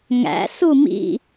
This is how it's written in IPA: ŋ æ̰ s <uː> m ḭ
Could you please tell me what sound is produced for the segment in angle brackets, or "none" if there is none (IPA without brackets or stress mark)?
u